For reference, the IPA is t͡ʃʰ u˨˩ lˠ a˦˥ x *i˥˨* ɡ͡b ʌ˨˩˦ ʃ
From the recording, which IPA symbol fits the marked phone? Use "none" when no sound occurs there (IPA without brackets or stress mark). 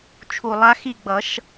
i˥˨